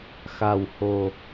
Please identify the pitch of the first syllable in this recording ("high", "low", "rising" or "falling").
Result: low